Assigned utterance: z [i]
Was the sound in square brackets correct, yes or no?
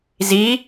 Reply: yes